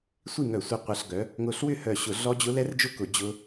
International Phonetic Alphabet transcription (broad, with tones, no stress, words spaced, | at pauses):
sʷi˥˨ŋœ˧˩˧sʷœ˧ qʷɐ˧ɬɡœ˨˥ | ŋʊ˧˩ɬwʏ˥˨hœ˧˩ɕʊ˧˩˧ ɮɔ˦˥d͡ʑʊ˦˥ lɛ˦˥rd͡ʒʊ˥˨kʊ˧˩˧ d͡ʑʊ˦˥